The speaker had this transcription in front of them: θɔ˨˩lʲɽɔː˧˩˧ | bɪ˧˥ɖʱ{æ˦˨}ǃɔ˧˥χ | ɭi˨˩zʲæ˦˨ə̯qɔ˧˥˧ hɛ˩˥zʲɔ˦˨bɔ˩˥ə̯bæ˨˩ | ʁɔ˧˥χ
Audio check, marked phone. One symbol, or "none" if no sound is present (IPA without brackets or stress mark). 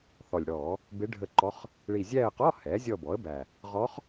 ə˦˨